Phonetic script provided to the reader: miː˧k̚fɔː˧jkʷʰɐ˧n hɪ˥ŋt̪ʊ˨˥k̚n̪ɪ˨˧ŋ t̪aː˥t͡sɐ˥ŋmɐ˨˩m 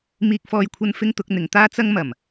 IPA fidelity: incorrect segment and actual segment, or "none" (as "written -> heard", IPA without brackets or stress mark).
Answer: h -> f